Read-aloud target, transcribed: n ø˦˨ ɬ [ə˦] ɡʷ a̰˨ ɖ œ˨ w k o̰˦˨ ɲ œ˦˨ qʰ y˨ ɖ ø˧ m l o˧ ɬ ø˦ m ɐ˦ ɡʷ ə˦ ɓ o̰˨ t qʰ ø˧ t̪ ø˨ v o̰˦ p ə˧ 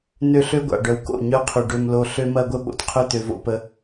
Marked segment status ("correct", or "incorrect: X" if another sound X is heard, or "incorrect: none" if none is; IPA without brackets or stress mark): incorrect: ø˦